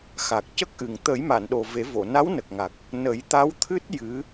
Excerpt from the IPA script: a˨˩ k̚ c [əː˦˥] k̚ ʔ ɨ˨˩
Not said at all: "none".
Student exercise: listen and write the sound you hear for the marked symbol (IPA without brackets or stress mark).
ə˦˥